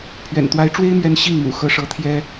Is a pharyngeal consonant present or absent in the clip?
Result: absent